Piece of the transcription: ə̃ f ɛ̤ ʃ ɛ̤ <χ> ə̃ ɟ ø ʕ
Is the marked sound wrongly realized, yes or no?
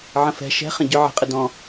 no